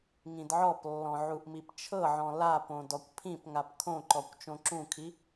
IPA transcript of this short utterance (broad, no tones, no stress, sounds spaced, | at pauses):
ŋ ĩ d ʕ ɔ p lː ɔ̃ ʕ u ʔ m i p t͡ʃʰ ɤ ʕ ɔ̃ l a p õ d ɔ kʷ pʰ ĩ p ŋ a p kʰ õ ǃ ɔ kʷ t͡ʃ õ ǁ ũ kʰ i